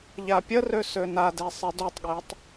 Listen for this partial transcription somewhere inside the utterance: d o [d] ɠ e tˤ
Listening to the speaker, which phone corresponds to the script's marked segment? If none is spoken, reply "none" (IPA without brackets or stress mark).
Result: tˤ